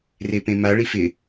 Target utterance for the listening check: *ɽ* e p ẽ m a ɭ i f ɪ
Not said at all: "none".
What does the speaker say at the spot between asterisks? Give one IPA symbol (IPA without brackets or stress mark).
r